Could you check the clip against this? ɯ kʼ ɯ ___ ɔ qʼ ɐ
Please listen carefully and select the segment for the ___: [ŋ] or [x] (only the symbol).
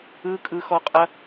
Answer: x